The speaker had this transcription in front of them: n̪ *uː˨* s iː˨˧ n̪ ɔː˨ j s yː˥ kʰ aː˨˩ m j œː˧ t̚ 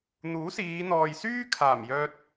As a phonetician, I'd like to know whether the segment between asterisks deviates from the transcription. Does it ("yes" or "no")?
yes